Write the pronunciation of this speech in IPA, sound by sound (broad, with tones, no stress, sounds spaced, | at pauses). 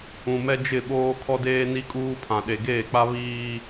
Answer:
ũ˨ m ɛ˦ d͡ʒ ɪ˦˨ ɓ oː˦ kʰ ɔ˦ d eː˦ n i˦ kʼ uː˦ pʰ ã˨ ɗ e˨ ɡ eː˦˨ k͡p a˦ β iː˦